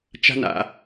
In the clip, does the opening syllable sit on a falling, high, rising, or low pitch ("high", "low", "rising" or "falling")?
high